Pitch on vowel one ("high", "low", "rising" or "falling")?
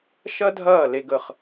high